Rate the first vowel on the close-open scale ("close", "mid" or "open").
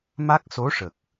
open